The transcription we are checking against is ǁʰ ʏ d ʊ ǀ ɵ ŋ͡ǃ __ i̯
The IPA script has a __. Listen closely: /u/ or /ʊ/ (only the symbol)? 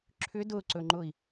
ʊ